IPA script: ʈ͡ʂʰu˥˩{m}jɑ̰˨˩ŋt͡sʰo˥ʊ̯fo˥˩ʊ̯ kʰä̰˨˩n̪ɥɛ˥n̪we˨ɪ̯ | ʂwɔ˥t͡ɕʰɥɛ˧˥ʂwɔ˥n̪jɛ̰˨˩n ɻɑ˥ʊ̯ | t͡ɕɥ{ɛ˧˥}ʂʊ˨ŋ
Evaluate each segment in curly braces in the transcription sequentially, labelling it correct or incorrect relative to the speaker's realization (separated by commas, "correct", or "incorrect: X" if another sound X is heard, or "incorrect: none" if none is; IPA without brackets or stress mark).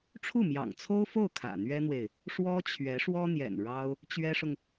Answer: correct, incorrect: ɛ˥